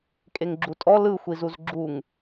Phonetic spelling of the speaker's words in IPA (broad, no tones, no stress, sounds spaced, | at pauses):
kʼ e ŋ ɡ͡ǁ u tʼ ɔ l ɯ xʷ i z u z ɡ͡ǁ u ŋ